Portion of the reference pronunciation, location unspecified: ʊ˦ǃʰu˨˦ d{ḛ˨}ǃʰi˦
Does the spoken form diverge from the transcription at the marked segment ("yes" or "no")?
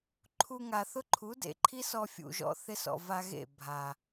no